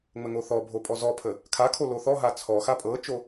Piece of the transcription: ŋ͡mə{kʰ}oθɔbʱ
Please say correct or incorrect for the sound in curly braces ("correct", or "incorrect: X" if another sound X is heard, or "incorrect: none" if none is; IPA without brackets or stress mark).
incorrect: ŋ